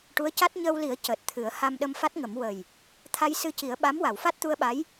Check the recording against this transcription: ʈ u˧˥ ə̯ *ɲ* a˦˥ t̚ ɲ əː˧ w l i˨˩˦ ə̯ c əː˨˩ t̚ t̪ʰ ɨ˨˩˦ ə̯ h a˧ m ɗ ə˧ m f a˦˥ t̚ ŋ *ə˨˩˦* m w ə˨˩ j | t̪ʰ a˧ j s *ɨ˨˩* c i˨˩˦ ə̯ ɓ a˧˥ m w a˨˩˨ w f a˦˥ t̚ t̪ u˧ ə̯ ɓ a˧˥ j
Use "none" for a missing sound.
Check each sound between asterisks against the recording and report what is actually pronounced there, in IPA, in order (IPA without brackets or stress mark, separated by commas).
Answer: c, ə˨˩˦, ɨ˧